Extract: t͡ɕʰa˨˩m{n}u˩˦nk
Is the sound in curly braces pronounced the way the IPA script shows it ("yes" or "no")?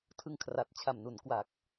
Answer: yes